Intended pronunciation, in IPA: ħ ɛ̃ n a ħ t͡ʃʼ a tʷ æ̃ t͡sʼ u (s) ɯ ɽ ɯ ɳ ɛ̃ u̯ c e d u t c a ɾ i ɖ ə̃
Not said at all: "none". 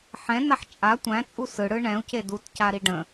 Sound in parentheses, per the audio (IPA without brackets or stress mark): s